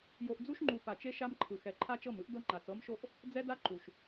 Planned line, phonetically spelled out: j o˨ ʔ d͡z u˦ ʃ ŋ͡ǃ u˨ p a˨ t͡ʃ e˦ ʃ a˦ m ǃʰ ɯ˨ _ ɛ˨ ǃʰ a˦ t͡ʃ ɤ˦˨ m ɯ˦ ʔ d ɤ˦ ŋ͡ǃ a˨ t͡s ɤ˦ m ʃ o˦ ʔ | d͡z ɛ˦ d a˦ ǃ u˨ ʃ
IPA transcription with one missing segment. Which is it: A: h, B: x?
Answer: B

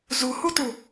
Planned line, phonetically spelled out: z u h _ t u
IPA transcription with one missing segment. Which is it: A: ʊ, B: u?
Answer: B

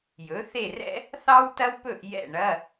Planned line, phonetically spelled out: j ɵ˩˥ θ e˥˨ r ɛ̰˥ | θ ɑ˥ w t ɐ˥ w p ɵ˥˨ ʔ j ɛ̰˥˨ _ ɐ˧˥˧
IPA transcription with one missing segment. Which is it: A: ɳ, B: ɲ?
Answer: A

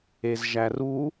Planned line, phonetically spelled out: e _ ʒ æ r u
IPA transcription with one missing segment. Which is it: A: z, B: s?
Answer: A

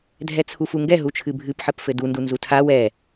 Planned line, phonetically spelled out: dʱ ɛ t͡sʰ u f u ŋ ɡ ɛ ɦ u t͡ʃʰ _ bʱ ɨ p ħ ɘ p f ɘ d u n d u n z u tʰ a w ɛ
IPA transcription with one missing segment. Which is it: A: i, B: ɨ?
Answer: B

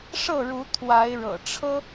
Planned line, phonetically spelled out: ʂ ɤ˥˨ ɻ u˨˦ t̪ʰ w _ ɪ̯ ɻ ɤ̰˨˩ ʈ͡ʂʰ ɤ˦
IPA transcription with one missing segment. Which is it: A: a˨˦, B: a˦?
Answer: A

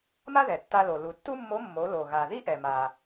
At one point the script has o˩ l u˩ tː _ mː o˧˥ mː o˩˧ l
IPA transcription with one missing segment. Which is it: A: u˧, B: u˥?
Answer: B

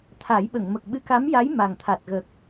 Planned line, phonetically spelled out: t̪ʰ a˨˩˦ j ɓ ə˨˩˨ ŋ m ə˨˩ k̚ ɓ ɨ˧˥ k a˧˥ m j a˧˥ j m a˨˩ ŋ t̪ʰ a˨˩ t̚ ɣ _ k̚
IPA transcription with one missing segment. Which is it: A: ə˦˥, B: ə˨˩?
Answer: B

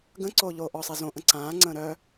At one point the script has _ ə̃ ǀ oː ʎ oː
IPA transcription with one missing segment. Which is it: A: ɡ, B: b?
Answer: A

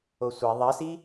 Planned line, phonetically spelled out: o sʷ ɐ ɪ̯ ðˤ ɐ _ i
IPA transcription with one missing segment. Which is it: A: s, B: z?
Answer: A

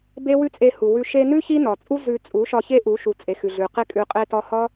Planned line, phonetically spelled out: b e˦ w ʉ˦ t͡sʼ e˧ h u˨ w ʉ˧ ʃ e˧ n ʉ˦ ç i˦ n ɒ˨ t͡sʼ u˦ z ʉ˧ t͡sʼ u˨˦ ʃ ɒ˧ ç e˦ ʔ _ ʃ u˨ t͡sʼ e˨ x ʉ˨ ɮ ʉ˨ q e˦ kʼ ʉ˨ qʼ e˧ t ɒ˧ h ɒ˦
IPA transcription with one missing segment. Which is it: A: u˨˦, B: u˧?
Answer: A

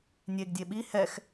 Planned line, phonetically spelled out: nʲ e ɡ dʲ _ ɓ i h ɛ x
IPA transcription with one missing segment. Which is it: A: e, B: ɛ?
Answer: A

